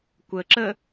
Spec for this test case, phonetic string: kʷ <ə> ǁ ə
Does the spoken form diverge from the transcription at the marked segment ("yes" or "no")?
no